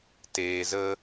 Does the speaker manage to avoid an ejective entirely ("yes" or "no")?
yes